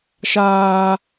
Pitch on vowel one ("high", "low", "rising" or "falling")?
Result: high